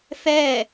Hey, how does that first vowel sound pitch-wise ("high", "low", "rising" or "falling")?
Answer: falling